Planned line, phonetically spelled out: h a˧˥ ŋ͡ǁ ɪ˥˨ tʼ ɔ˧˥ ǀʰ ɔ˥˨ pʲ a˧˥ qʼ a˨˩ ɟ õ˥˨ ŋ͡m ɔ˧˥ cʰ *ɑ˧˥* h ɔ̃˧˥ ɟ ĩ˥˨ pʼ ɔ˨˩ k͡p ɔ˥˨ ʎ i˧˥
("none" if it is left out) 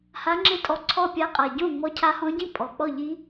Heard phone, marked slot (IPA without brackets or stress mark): a˧˥